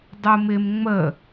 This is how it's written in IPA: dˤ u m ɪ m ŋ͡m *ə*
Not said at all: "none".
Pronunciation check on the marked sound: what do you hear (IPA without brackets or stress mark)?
ə